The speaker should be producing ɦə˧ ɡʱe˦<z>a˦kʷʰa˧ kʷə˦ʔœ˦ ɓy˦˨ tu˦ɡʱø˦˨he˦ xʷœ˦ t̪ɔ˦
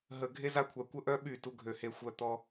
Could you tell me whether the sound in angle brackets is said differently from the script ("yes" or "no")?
no